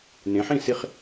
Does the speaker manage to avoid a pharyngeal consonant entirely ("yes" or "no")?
no